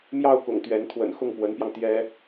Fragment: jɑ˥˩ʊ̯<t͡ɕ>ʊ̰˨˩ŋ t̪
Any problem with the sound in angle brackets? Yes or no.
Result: yes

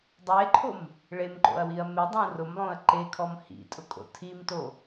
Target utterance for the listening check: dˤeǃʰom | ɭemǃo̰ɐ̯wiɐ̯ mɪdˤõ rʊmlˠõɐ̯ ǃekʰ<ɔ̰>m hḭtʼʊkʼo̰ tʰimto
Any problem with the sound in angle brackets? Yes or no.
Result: yes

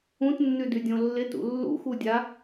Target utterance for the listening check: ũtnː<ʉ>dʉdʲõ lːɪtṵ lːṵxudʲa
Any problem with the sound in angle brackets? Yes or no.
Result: no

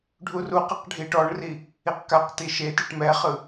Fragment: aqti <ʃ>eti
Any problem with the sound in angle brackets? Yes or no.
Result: no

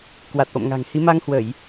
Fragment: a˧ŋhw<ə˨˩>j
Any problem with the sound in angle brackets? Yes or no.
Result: yes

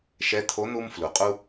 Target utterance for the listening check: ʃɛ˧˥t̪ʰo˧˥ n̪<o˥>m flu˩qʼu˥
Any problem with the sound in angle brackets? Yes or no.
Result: yes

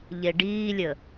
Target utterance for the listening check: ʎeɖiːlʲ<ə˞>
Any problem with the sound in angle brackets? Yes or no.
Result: yes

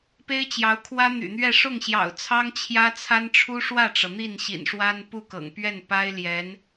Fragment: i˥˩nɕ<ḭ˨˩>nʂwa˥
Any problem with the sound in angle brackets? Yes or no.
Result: no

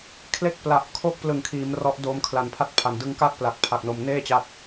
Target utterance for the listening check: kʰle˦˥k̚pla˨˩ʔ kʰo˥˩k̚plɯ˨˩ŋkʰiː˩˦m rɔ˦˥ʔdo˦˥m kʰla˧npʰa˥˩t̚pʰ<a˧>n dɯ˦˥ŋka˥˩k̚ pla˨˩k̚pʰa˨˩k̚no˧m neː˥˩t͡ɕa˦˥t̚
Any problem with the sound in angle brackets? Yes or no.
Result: no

